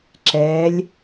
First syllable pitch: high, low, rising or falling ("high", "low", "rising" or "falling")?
rising